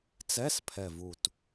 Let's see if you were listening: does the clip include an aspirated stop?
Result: yes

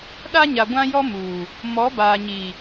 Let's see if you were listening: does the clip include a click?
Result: no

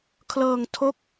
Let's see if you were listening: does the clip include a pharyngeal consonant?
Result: no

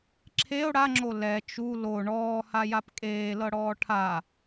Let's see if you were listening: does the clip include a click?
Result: yes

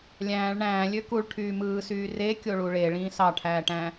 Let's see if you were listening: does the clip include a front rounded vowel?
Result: yes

